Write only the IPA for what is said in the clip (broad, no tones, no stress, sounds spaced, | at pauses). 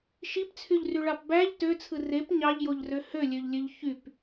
ʃ i p t͡sʰ y ʎ r y ɭ ɑ p b æ ʎ t ø t͡sʰ ɯ r e p ɲ ɑ ʎ j o ʎ r ø h ø lʲ ø ʎ lʲ ø ʎ ç y p